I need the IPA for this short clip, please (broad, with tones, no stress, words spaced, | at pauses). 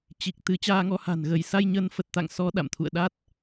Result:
t͡ɕi˨˩k̚t̪ɨ˨˦ t͡ɕaː˧ŋɔ˨˦ha̤˨˩nɣə˧˩j sa˧jɲə˨˦nfə˨˩t̚ t̪a̰˧˨ŋ sɔ˨˦ ɗa̰˧˨mt̪ʰṵ˧˨ə̯ɗa˦˥t̚